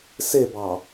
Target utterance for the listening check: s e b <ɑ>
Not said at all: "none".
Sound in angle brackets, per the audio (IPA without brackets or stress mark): ɑ